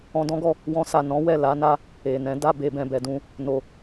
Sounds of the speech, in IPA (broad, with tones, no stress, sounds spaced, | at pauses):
ɔ̃˧ d ɔ̃˦ ɡ ɔ˦˨ | w ɔ̃˧ s a˨ n ɔ̃˨˦ w ɛ˦˨ l a˨˦ n a˦ | e˨ n ɛ̃˨˦ d a˦˨ b e˨ b ɛ̃˨ b ɛ˨ d ũ˧ | n o˨